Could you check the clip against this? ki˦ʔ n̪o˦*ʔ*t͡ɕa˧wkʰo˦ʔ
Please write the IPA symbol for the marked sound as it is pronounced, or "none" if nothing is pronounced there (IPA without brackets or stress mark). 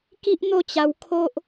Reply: none